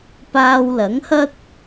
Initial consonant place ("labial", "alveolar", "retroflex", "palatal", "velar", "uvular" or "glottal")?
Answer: labial